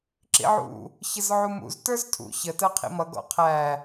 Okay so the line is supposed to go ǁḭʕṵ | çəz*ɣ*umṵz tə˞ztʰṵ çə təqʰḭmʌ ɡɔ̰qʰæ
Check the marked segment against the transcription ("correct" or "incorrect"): incorrect